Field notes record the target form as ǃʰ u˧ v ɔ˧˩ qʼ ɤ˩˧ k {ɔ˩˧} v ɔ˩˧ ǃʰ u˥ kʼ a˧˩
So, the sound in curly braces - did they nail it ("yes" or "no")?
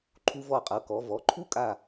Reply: yes